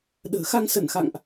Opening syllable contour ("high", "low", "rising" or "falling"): low